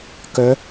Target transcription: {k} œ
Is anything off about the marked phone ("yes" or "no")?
no